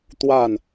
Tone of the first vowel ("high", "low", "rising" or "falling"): falling